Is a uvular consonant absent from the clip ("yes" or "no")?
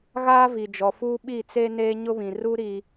yes